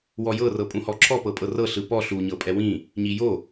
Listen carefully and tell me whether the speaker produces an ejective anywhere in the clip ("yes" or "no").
yes